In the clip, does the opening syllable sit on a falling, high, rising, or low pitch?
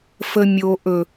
high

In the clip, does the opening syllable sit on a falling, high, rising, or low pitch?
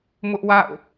high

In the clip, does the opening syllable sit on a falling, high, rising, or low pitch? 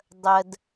low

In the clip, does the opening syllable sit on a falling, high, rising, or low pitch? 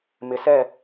rising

